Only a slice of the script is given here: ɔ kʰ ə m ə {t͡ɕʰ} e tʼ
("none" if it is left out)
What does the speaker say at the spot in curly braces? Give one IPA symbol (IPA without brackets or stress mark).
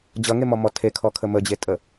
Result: d͡ʑ